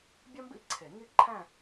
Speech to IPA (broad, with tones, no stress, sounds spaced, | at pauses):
bʲ ɒ˥ m b ḭ˥˧ ǀʰ e˨˩˦ ŋ i˥˧ ǃʰ æ̃˥˧